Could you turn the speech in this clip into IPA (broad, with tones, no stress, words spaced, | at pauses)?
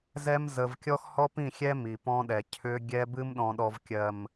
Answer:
zɛ˦m zə˦v kʲɔ˦xhɔ˦pĩ˦˨xʲɛ˦ mi˨pɔ̃˦ɗɛ˨ cʰʏ˦ ɡʲɛ˦bɨ˦m ɗɔ̃˨ɗɔ˨vkʲɜ˨m